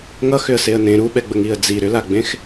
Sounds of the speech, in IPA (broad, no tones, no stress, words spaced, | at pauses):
ŋʌxʏə̯seə̯ nẽ ɾuɓɛɡ͡bəŋiə̯ d͡zi ɾʏlaɡ͡bẽx